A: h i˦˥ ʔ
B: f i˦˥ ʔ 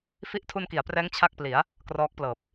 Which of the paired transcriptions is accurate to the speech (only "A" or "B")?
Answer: B